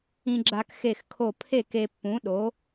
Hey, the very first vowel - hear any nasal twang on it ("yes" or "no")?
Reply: yes